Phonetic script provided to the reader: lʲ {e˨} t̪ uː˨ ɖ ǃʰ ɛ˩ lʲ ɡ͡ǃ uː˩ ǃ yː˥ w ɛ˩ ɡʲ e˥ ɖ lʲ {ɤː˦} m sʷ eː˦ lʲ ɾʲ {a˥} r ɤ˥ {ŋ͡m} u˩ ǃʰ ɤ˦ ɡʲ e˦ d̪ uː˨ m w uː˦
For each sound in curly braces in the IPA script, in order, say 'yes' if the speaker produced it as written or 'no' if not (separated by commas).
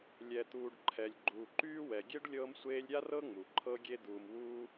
no, yes, yes, yes